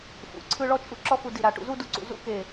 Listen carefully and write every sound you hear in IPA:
f ṵ˩˧ ǀʰ ɯ˥˧ ɭ ɔ˥ t͡ʃʼ u˥˧ ǁ ɔ˥ f u˧ d i˧˩ ɾ a˧˩ ʈ ṵ˧ z u˥˧ d u˧ ǀ ṵ˧˩ z ṵ˥ k e˧˩

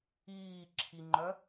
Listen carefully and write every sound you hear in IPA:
iː ǁʰ i ŋ͡ǃ œ

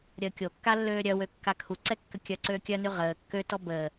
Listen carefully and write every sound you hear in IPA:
ɾʲ əː kʲ o kː a lː øː ɾʲ œ w ø kː a kʰ u ǀ ɛ kː ə kʲ œ ǀ øː kʲ œ n y ʁ əː kː ø t ɔ b əː

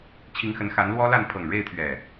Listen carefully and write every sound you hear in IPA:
t͡ɕʰ i˨˦ ŋ x ə˨˦ n x a˨˦ n l w ɔ˦ l a˥˨ n pʰ ɤ˨˩ ŋ ɻ e˥˨ ɪ̯ t̪ʰ ɥ ɛ˨˩

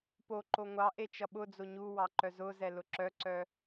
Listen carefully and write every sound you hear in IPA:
p o ǃ o ŋʷ ɑ ʔ e t͡ʃ ʌ ɓ ʊ d͡z o ɲ u w ɑ ǃ œ z ʊ z ɛ l ʊ ǁ œ ǀ œ

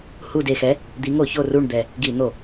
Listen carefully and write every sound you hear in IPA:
h u˨˩ d e˨˩ x ɛ˨˦ | d̪ i˨˦ ŋ o˧˩˧ ç o˦˨ r u˦˨ ɳ d̪ ɛ˨˩ | ɡ i˧˩˧ n̪ o˧˩˧

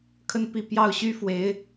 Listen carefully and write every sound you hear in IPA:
kʰ ə˥˧ n p i˥˧ p j ɑ˥˩ ʊ̯ ɕ y˥ f w e˧˥ ɪ̯

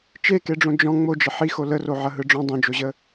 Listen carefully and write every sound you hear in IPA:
t͡ʃ e k e ɖ͡ʐ õ d͡ʒ ɔ̃ ŋ͡m o d͡ʒ ə ħ i x o l ə r o ʕ ɐ ɦ ɯ ɖ͡ʐ ɔ̃ dˤ õ d͡ʒ o ʑ ə

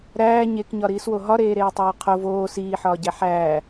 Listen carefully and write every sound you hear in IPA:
ɾ æː ɲ e k ɲ ɒ ɾ iː s w o ɦ ɒ ɾ eː ɾ eː tˤ æ w qʰ o v oː s iː ħ ɒː ɟ æ ħ æː

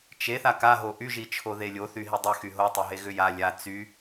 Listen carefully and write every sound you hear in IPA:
t͡ʃ e θ a k a ɦ o ʔ y ʒ i t͡ʃʰ o ð e lʲ o θ y ɦ i dˤ y x y ɦ o tˤ e ɦ e ɣ ʏ j a lʲ a t͡s y

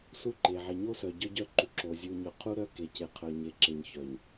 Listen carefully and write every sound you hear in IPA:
s u˦˨ ǃ e˨ ʕ e˨ ɲ o˦ s œ˨ ɟ œ˦ ɟ œ˦ ǃ u˨ ǁ o˨ zʲ u˨ ɲ œ˨ qʰ u˦ ɾ œ˦ k e˨ c e˨ qʰ œ˨ ɲ e˨ ǁ e˨ ɲ ç œ˨ ɲ

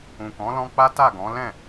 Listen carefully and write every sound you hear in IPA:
ũ˨ k ɔ̃˨˦ l ɔ̃˧ k͡p a˦ t a˦˨ ɡ ɔ̃˨˦ l ɛ̃˦˨

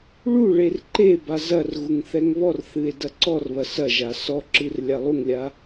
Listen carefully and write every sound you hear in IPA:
ɭ u ɭ e r ǃ e b a z ɐ r ɣ u ŋ θ ɛ ŋ β ɔ r θ ɨ e̯ d ɐ ǀ ɔ r β ɐ s ɐ ʒ a s ɔ ǁ ɨ r lʲ a lˠ u ŋ lʲ a

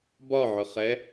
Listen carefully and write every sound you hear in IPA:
b ɒ ʕ ʊ χ ɛ

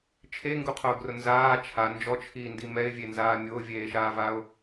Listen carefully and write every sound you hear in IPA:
t͡ʃʰ e ŋ ɡ u qʰ ʊː ɡ r ʊ n z aː t͡ʃʰ a n d͡ʒ ɔ t͡ʃʰ iː n d i m ɛ ɪ̯ vʲ e n z aː mʲ ʊː vʲ eː ʃ aː v a ʊ̯

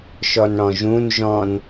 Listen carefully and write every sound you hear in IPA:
ʃ ɔ n ɽ ɔ̃ ʒ ũ n ʒ ɔ̃ n

